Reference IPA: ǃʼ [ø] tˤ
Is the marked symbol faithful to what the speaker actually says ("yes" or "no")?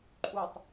no